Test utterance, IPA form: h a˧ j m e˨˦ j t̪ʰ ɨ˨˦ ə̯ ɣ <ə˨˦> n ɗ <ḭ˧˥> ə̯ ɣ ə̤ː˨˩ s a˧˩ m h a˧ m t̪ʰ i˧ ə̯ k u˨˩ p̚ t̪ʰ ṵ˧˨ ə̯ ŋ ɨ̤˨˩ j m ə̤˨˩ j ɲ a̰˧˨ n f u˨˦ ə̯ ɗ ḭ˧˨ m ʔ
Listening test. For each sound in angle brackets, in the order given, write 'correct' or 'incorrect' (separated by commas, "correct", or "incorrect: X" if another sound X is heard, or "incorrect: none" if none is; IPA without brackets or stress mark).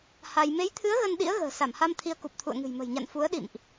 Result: incorrect: ə˧, correct